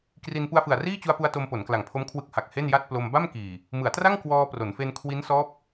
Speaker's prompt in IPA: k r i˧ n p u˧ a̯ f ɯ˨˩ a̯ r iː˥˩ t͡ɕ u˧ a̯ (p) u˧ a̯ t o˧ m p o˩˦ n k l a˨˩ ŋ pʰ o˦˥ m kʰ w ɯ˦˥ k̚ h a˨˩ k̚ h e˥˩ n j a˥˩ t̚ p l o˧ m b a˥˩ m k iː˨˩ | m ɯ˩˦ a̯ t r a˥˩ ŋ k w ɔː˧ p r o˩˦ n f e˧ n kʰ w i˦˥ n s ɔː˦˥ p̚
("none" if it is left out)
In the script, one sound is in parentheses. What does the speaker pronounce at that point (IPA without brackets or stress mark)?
p